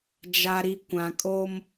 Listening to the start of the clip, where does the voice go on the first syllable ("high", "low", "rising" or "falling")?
low